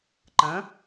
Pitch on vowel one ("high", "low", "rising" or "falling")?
rising